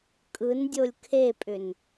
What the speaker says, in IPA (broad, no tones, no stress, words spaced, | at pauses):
kʼɯndʲolʲ kʰepʼʏn